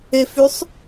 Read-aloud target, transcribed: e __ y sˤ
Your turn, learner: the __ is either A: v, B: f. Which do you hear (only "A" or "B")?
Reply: B